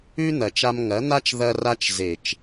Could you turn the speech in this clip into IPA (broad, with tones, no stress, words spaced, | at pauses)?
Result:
ʉ˦ n̪ɐ˨t͡ʃa˧m ŋɐ˨˦n̪a˦t͡ʃ ðɐ˧ra˧t͡ʃ ze˨t͡ʃ